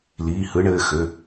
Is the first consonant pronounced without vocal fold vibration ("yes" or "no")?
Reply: no